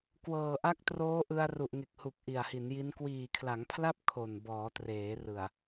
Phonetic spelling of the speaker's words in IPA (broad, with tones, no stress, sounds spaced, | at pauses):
k w ɤː˨˩ ʔ a˦˥ k̚ t r oː˦˥ ʔ ɯ˧ a̯ r u˨˩ ʔ ŋ e˨˩ k̚ h u˨˩ k̚ ʔ i˨˩ a̯ h i˩˦ n j i˦˥ n k w iː˨˩ kʰ l a˩˦ ŋ pʰ l a˥˩ p̚ kʰ o˨˩ n b ɔː˩˦ t r eː˩˦ r ɯ˨˩ a̯